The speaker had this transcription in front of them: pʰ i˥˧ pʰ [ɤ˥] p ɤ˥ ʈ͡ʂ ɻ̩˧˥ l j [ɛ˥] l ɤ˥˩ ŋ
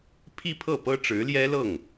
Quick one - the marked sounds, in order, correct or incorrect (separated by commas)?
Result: incorrect, correct